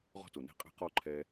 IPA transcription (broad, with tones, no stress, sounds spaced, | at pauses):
ʁ ɔ̤˥ t o˩ n ɛ̤˦ qʼ ɛ̤˥ q ɔ˥ ǃʰ ɛ˦